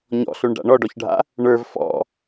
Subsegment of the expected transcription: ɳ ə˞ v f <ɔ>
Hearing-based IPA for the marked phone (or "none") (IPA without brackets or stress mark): ɔ̰